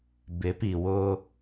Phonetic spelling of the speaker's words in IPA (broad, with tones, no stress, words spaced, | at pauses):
bɪ˨˦pi˨wʊ˦